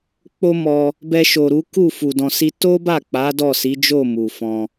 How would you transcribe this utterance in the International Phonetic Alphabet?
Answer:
k͡po˦mɔ˧ | bɛ˧ʃo˨ ɾu˨˦ku˦˨fu˨ dɔ̃˨si˧ to˦ba˦˨k͡pa˨˦ dɔ˦˨si˨˦d͡ʒo˦˨ mu˨fɔ̃˧

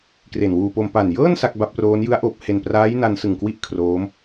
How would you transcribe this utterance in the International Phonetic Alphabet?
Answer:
kre˨˩nwuː˧po˧m pa˨˩njɤː˥˩n sa˥˩k̚ ba˦˥p̚roː˦˥n jɯ˦˥a̯ʔoː˨˩p̚he˨˩npraː˦˥j na˦˥nsɯ˨˩ŋkwi˥˩ʔ kʰroː˦˥m

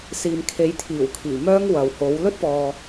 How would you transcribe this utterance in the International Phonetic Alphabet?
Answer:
siː˨mkʰe˨˥jt̪ʰiː˨˩wkʰiː˨˩ mœː˥ŋwɐ˨who˨˥w lɵ˥t̚pɔː˨

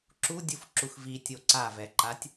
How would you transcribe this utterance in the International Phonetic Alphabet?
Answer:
ǁudʲufǁux vitʲo ǀavɛǃatʲ

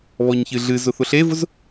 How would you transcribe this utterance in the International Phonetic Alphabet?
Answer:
βɔɲçɨɮɨ zʊθʊɬevʊz

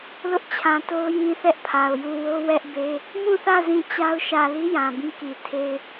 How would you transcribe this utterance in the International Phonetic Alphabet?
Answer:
lʊ˦ʔt͡ɕʰã˨to˦ʊ̯ jĩ˦θɛ˦ʔpʰa˨ʊ̯ju˦˨ wo˦wɛ˦ʔbe˦ | mũ˦˨θä˦˨ zĩ˦˨t͡ɕa˦ʊ̯ ʃä˨li˦ jã˨bĩ˦ ki˨tʰe˦ɪ̯

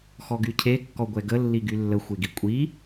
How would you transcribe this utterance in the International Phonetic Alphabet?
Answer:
xɔɡycʰe kːɔɡʷɛɡə lːiɡylːə xʷeɡikʷʼi

